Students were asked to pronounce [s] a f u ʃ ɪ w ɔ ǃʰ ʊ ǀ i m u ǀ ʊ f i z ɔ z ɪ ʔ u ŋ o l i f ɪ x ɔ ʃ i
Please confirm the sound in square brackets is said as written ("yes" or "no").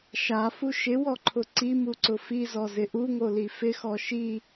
no